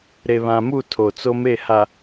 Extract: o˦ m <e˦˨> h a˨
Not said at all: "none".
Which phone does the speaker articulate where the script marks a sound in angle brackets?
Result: e˦˨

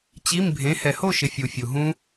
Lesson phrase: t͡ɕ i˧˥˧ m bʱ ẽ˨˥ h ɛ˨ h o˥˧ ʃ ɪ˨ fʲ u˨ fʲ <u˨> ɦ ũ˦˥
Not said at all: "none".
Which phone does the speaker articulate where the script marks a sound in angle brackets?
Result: u˨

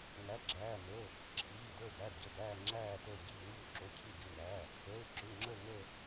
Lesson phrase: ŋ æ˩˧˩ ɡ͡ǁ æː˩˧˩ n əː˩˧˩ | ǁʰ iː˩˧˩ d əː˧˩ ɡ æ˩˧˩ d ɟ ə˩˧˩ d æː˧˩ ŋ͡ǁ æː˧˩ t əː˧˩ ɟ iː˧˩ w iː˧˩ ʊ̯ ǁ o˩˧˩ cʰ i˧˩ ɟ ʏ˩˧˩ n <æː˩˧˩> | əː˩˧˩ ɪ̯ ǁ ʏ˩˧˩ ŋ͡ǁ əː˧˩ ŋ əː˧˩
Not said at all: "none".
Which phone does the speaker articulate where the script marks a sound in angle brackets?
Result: æː˩˧˩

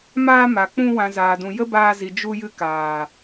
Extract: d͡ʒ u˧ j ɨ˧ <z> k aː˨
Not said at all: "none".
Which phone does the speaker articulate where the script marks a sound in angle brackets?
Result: none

